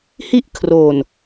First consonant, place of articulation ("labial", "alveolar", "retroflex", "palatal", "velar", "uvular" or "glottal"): glottal